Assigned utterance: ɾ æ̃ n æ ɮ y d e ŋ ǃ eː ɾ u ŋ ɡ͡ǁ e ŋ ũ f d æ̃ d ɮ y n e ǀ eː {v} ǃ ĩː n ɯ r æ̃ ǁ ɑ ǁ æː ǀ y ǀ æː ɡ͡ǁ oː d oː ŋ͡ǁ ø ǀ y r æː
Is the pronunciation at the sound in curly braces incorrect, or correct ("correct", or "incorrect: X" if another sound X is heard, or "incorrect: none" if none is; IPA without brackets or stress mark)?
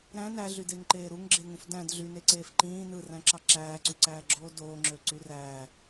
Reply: incorrect: f